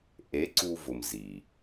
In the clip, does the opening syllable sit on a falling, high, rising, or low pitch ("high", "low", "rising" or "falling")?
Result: rising